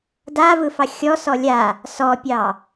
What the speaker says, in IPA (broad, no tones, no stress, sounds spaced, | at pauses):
d a v ɯ f ɑ xʲ ɔ s ɔ lʲ a | s ɔ pʲ ɑ